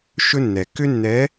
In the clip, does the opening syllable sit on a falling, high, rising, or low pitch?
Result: high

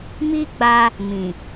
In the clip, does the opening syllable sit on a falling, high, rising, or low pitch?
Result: high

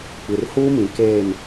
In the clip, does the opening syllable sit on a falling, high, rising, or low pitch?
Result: low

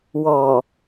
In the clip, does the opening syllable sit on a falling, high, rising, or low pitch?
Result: low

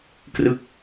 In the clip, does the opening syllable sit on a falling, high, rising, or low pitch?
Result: falling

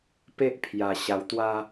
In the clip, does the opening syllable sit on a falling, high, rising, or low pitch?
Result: high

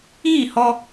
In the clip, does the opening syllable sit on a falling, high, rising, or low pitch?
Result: falling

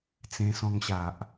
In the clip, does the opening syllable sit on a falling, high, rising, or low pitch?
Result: high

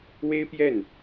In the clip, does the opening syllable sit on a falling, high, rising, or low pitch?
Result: high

